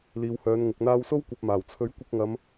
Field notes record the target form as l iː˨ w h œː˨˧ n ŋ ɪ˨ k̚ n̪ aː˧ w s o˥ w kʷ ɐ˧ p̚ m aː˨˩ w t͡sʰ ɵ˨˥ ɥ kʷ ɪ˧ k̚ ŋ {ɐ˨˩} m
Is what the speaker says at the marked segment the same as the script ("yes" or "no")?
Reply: no